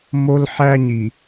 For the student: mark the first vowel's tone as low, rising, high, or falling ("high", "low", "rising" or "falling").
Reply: high